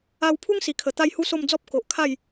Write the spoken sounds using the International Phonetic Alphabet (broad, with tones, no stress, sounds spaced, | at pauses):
a˧ w pʰ u˦ ŋ s i˨˩ kʰ ə˨˩ t̪ a˥˧ j h u˦ s o˥˧ m d͡z ɔ˦ p̚ k o˨ ʔ kʰ a˥˧ j